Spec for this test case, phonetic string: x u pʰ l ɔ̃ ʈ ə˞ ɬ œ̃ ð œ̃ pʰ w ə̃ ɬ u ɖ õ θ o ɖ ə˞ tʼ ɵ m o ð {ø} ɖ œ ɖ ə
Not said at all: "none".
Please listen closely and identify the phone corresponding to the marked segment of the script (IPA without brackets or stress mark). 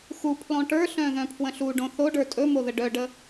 ə